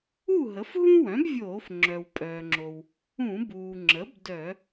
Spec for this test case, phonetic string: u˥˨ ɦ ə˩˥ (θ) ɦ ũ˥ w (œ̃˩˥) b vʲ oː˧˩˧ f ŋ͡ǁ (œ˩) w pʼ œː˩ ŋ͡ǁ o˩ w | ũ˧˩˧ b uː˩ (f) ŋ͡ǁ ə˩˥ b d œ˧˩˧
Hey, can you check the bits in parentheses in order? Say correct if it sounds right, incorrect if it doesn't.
incorrect: f, correct, correct, incorrect: none

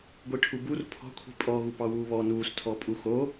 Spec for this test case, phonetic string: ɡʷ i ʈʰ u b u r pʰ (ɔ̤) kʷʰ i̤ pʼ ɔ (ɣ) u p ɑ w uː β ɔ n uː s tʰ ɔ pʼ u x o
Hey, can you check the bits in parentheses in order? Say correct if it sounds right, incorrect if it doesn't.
correct, correct

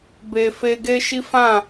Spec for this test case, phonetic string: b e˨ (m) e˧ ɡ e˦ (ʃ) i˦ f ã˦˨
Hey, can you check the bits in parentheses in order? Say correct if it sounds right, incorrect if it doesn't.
incorrect: f, correct

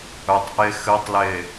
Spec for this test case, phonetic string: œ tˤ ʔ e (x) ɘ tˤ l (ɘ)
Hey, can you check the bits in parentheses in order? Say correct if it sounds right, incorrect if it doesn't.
correct, incorrect: e

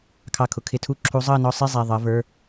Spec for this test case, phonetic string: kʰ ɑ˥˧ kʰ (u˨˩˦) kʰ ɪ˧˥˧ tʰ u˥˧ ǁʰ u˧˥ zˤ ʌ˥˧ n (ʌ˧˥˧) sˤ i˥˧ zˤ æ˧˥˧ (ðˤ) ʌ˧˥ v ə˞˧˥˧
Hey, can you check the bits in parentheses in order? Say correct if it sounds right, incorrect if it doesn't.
incorrect: ʊ˨˩˦, incorrect: ɔ˧˥˧, correct

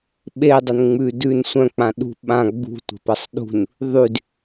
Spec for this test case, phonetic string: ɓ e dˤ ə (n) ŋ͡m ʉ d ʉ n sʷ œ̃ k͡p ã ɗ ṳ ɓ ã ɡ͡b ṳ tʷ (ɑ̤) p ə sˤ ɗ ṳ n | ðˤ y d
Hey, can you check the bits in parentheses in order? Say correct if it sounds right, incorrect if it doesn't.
correct, incorrect: ə̤

